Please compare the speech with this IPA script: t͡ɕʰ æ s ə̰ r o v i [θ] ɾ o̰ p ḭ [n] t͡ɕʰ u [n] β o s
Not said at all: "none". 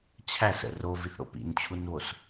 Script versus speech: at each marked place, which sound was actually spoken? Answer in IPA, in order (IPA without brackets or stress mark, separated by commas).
θ, n, n